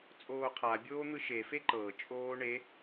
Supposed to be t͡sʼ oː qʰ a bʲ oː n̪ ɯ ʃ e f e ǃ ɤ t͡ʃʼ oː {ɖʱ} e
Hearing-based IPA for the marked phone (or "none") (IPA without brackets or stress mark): ɳ